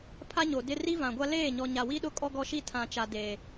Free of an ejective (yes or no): no